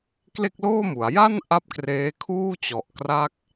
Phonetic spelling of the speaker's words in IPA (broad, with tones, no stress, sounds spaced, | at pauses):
k l e˥˩ k̚ l oː˥˩ m u˩˦ a̯ j a˥˩ n ʔ a˦˥ p̚ k r eː˦˥ kʰ uː˥˩ t͡ɕ ɔ˨˩ ʔ k r a˥˩ k̚